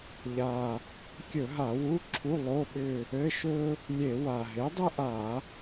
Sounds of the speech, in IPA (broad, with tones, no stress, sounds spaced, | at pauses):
ʎ a˨˩ | kʲ ɵ˧˩˧ ɦ a˧˩˧ w u˧˥˧ ǁʰ u˧˥˧ lˠ o˧˥˧ ɓ ʏ˦˨ | ɘ˧˥˧ ʃ ɵ˥ | lʲ e˧˩˧ w a˨˩ ɦ e˩˥ dˤ ɘ˥ ʔ a˧˩˧